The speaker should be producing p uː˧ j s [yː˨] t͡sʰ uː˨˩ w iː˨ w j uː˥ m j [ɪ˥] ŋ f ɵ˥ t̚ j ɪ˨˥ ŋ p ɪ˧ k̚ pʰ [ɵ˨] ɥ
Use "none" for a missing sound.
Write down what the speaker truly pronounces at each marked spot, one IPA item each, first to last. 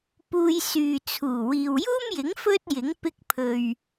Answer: yː˨, ɪ˨˥, ɵ˨

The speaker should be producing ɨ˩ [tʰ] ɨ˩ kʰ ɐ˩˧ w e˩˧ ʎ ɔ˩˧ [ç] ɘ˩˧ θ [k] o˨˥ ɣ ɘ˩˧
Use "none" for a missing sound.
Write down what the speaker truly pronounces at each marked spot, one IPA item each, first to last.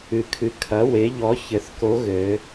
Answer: kʰ, ç, k

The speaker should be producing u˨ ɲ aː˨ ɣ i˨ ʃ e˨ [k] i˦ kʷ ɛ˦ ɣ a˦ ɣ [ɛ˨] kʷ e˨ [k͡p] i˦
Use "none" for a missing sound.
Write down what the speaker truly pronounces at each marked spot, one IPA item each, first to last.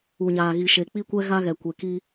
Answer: k͡p, ɛ˨, k

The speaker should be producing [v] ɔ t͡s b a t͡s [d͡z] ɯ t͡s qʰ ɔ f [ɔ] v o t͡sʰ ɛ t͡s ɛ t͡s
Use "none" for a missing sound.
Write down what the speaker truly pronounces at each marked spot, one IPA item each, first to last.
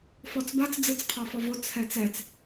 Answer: f, d͡z, ɔ

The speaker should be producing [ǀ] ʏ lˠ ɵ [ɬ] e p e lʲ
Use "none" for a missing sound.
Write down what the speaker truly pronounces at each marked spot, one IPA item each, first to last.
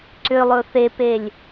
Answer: ǀ, θ

